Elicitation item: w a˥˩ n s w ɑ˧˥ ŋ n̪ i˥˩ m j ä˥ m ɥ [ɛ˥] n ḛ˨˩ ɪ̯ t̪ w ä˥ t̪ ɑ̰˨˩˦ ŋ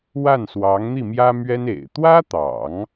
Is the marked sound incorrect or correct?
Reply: correct